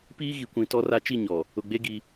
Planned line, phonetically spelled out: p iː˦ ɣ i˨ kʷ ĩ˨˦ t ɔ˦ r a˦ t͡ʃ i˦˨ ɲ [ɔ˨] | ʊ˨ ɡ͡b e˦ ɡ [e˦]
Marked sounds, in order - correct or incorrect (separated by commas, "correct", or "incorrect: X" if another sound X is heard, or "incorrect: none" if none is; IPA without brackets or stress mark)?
correct, incorrect: i˦